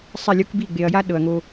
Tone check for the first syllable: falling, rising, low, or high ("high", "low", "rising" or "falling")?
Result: falling